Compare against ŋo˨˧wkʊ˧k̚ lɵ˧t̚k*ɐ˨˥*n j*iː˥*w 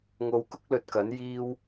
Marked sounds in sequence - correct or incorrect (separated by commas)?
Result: correct, correct